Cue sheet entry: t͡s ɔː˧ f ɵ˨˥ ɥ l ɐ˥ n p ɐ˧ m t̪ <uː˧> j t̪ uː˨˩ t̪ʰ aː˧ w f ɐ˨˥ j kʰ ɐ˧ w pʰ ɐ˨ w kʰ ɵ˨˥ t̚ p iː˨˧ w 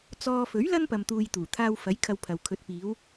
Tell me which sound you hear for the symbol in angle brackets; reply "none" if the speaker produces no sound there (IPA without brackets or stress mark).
uː˧